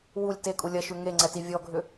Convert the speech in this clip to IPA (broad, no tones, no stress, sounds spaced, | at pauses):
w u lʲ t e kʼ u lʲ ɐ ʃ ʉ ŋ e ŋ͡ǀ ɛ t i vʲ ɔ ɡʱ ʏ